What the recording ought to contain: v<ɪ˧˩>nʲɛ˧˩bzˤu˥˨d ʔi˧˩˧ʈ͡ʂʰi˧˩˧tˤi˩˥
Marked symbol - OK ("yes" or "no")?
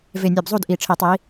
yes